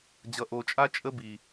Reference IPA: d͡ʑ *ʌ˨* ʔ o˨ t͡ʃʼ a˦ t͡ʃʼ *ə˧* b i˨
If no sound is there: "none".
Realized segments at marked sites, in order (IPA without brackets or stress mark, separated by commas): ʌ˨, ə˧